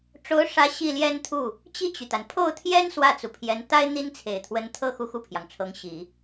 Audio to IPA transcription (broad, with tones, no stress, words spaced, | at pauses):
ʈ͡ʂo˧˥ʊ̯ʂä˧˥ ɕi˥˩ljɛ˥nt̪ʰu˥˩ | t͡ɕi˥˩t͡ɕy˩t̪a˩n pʰo˥˩ʊ̯t̪ʰjɛ˥n swä˥˩t͡su˩pʰjɛ˧˥n t̪a˥ɪ̯ n̪i˥nt͡sʰe˨˩ɪ̯ t̪ʰwə˧˥nt̪ʰɤ˥˧ xu˥˧xu˥˩pʰjɑ˩ŋʈ͡ʂʰɤ˧˥ŋ ɕi˨˩˦